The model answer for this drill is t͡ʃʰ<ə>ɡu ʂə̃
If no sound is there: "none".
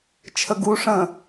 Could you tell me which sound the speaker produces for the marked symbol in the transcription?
ə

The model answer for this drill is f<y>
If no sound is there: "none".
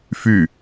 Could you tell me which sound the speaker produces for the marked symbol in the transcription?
y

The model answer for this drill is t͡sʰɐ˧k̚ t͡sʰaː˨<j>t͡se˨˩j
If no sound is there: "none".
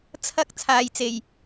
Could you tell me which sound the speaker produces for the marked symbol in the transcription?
j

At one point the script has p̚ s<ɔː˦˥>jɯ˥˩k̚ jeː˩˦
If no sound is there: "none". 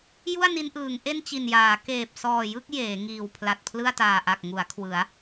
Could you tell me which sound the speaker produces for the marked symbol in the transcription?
ɔː˨˩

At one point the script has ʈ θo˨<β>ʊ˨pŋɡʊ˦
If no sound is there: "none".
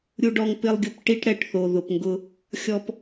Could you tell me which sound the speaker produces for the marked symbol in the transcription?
ð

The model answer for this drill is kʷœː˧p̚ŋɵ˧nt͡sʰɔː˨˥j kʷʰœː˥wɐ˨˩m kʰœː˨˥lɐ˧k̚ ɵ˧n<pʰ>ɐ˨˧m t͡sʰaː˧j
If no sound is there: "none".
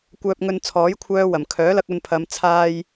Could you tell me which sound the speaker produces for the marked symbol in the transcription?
pʰ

